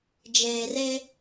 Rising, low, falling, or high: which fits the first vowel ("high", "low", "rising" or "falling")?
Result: low